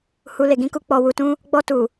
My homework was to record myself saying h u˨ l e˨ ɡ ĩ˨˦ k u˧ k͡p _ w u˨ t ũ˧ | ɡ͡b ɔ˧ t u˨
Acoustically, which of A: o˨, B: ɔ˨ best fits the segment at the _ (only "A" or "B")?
B